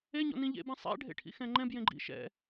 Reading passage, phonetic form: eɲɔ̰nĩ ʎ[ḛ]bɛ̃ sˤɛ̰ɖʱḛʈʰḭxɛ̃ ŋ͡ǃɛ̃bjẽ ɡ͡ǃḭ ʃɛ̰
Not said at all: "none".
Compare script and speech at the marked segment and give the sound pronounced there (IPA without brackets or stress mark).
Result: ḛ